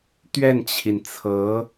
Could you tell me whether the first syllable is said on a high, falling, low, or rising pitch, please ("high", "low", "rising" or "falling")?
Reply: falling